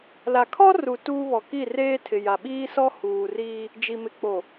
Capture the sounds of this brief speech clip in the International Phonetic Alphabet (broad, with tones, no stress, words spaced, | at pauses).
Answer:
la˨kʰɔ˦ru˨ tuː˦βɔ˨ ki˦˨reː˦tʰɪ˨ ja˨ɓiː˦sɔ˦ huː˨riː˦ | d͡ʒi˨mɪ˨k͡po˨